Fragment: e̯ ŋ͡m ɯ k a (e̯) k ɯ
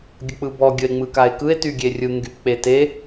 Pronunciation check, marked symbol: correct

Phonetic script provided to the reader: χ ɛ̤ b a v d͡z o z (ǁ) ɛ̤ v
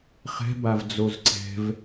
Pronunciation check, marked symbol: incorrect: ǀ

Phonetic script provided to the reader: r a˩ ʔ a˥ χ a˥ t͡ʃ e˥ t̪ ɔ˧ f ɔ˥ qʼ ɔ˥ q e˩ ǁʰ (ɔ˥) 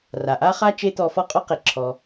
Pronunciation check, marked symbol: incorrect: ɔ˩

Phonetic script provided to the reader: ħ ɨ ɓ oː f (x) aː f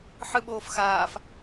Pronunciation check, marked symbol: correct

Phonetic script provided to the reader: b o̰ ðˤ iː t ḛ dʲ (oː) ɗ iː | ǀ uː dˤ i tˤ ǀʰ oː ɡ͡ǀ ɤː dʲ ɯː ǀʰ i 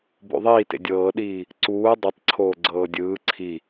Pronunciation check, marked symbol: incorrect: ɤː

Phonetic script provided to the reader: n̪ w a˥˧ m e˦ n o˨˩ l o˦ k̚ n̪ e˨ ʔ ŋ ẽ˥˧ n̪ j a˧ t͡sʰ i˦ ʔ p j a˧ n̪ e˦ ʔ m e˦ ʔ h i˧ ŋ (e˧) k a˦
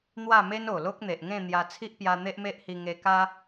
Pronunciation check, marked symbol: correct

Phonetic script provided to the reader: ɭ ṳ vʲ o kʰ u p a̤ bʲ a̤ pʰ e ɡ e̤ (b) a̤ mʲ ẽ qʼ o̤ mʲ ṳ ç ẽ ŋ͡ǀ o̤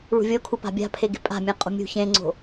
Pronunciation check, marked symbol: incorrect: pʼ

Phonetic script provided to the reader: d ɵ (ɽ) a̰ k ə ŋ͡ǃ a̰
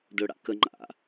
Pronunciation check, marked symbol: correct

